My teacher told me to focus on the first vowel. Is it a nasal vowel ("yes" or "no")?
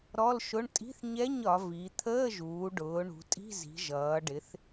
no